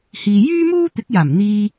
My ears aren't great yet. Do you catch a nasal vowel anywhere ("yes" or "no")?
no